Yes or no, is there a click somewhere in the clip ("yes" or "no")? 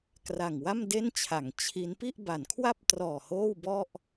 no